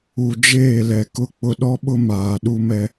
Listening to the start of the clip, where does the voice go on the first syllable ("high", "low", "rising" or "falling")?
low